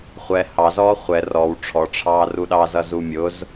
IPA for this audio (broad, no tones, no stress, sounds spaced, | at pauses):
χʷ ɛ h ɑ z ɔː χʷ ɛ r ɔ w ʈ͡ʂʰ ɔ ʈ͡ʂʰ ɑː r u ɗ ɑ z ʌ z u mʲ ʊ z